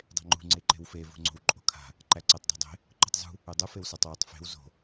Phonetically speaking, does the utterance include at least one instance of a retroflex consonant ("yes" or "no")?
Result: no